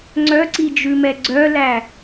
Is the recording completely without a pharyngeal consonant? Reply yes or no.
yes